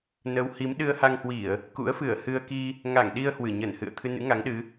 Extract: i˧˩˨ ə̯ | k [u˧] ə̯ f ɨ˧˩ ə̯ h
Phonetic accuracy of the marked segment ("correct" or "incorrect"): incorrect